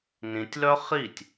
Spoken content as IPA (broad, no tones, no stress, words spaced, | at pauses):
nĩtʲlœ χitʲ